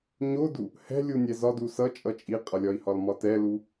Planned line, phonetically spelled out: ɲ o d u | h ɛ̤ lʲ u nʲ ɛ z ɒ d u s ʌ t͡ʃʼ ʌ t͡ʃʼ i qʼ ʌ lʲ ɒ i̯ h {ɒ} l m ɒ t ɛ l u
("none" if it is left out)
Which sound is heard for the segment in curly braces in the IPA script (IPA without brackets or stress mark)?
ɒ